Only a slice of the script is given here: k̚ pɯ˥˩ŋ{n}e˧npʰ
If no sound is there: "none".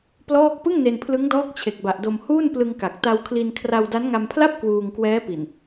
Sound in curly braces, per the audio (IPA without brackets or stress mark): n